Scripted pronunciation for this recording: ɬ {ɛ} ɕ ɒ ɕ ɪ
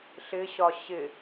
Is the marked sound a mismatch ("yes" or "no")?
yes